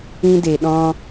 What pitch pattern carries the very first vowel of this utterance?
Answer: high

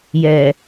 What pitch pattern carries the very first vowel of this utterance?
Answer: low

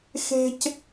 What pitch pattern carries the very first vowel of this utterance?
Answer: high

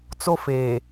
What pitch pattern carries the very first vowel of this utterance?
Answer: high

